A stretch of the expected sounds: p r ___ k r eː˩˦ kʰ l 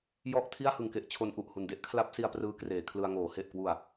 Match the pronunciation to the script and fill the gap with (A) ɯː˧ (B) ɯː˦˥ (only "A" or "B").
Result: B